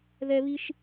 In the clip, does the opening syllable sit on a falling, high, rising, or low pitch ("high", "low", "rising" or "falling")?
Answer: high